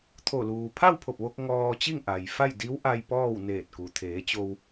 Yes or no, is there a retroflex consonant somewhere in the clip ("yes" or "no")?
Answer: no